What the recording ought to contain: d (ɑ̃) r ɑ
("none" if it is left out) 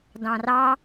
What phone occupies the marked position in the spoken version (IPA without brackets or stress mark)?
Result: ɑ̃